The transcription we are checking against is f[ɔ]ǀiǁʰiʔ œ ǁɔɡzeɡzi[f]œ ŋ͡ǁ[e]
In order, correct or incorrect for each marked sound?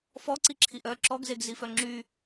correct, correct, incorrect

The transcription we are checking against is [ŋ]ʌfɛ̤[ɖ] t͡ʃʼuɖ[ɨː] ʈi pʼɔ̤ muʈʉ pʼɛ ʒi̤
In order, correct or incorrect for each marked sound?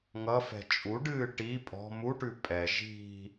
correct, incorrect, correct

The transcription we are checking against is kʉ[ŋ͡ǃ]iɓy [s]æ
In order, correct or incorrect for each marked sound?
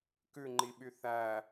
correct, incorrect

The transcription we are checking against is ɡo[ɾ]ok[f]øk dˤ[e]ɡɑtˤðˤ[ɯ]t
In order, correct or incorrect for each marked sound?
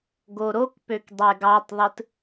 correct, incorrect, correct, correct

